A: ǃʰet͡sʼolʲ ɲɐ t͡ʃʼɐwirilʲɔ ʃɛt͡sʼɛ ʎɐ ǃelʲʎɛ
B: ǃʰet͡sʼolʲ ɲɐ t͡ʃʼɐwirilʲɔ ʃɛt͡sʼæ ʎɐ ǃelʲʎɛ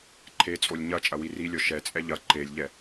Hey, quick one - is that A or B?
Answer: A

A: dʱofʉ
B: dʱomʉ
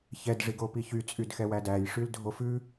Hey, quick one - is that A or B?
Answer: A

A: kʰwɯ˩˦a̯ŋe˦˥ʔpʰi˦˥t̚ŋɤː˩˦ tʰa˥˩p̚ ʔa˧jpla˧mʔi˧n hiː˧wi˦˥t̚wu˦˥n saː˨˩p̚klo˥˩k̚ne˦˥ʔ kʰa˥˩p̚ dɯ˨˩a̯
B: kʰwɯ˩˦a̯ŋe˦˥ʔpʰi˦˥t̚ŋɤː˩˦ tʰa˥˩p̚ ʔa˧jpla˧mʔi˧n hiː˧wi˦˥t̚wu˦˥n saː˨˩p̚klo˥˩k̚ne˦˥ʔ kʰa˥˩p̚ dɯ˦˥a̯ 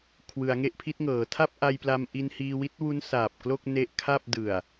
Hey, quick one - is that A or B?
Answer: A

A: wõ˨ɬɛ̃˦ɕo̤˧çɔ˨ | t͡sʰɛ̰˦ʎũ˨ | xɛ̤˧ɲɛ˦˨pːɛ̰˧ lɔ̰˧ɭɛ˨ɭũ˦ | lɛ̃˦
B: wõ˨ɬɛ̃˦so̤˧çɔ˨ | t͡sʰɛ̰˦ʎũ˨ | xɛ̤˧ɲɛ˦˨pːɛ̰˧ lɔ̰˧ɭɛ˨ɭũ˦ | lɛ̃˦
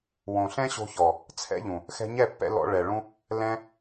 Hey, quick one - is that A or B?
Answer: A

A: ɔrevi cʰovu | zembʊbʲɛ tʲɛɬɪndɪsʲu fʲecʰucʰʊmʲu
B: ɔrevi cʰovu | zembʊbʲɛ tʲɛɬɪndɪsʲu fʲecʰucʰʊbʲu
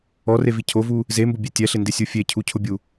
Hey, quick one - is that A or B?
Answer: B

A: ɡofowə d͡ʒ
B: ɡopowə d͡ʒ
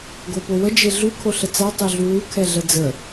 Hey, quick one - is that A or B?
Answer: B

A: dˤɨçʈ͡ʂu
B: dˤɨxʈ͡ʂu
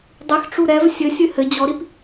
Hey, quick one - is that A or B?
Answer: B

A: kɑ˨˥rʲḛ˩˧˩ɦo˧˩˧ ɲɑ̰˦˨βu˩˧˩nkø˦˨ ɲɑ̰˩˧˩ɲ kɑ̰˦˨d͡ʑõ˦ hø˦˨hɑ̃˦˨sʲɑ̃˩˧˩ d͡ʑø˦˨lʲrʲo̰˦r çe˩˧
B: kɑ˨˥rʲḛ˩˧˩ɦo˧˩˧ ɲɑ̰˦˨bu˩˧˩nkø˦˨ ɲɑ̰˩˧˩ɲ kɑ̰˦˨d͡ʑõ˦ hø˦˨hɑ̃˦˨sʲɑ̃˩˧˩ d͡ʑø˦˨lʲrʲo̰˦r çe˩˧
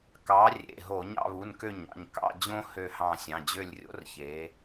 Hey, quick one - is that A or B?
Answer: A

